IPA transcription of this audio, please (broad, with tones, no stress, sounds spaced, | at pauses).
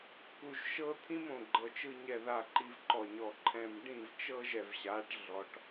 k u˨ ʒ ʃ ɤ˦ t̪ʰ ĩ˦ m õ˨ ɡ͡ǃ ɤ˨ t͡ʃ ɯ˦ ɲ ɛ˨ ð a˨ ǃ i˨ v ǃ ɔ˨ ɲ ɔ˨ ǃʰ ɛ̃˨ m ɖ ĩ˦˨ v t͡ʃ ɤ˦ ʒ ɛ˨ v ɕ a˨˦ ʈ ɮ ɔ˨ ʈ